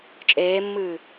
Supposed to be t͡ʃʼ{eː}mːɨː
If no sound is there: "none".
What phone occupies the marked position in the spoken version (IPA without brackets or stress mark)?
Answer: eː